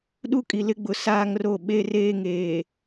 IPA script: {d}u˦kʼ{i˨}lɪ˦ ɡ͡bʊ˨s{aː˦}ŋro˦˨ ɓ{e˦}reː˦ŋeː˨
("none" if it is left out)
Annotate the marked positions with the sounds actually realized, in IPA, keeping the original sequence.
ɗ, i˨, aː˦, e˦

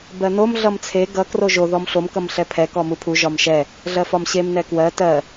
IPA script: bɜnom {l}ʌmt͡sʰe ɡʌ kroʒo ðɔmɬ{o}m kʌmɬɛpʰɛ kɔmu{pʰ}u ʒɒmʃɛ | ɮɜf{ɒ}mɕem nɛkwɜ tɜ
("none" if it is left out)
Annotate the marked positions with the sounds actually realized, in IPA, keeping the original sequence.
ɮ, o, pʰ, ɒ

